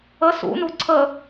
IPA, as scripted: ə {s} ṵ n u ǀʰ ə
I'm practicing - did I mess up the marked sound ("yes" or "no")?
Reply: no